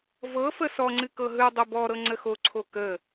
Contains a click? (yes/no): yes